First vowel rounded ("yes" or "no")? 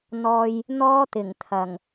yes